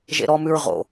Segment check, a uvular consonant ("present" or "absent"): present